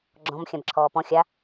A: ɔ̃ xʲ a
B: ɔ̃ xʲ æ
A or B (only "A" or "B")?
A